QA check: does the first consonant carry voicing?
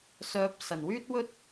no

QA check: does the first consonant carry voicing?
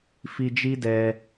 no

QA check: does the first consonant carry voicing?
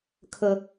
no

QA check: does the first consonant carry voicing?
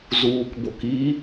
yes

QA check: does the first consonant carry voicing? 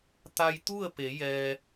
no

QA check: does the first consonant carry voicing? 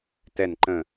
no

